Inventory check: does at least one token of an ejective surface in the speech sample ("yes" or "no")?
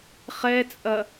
yes